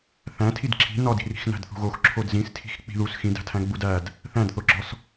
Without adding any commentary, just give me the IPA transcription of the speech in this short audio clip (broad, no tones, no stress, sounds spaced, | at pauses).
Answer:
θ æ̃ tʰ i d ǁʰ i̤ n ɒ d i̤ r i̤ x n æ̤ d θ ṳ ɣ o x ǁʰ o d z ĩ s tʰ i̤ x k͡p i̤ ð u s x ĩ d æ̤ tʰ æ̃ ɡ͡b u d æ d | θ æ̃ d θ o ɡ͡ǁ ɒ s